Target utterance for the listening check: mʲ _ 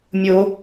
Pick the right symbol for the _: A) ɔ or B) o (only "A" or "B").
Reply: B